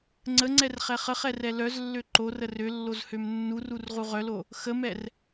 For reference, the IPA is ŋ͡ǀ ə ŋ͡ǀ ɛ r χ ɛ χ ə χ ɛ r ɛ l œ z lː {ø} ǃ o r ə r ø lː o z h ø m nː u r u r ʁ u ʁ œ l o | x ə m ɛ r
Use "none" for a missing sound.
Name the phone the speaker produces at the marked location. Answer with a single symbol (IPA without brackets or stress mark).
ø